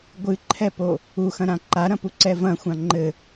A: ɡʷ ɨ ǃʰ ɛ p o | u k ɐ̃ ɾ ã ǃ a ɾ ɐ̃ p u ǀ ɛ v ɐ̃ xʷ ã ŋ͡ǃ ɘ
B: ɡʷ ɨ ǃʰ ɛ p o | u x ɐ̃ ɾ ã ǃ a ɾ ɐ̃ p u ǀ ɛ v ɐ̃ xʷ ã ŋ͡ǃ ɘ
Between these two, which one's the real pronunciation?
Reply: B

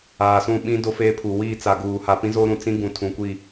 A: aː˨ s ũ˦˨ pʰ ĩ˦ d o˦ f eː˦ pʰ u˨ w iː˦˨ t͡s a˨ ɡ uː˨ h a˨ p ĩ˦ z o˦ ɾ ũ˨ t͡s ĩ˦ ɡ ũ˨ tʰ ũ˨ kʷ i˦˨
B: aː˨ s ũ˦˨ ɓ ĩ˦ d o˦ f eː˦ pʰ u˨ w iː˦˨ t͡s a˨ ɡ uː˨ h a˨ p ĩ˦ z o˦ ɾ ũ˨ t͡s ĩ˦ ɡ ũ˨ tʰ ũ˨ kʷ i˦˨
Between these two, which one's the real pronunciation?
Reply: B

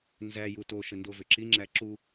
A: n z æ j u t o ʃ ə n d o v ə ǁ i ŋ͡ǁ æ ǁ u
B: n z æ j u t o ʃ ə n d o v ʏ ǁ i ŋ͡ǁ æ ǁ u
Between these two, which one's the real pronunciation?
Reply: B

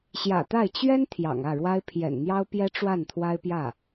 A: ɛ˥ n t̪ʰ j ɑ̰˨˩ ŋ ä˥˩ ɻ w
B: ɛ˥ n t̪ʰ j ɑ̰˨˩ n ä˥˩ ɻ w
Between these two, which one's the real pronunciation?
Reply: A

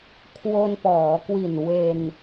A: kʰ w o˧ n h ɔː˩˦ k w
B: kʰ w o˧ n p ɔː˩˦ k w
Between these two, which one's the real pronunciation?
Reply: B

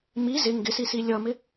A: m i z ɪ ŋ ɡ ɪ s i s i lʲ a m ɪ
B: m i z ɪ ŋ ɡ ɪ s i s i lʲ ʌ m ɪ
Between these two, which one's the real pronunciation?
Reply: B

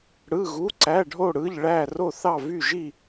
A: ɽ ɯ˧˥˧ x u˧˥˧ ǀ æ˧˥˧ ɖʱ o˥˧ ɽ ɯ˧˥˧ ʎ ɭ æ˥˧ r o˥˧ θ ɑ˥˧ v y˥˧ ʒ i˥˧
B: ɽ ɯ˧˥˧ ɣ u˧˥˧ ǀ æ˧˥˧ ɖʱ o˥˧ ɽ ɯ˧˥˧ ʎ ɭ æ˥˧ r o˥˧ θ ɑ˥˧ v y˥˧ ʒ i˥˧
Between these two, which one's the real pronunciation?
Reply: B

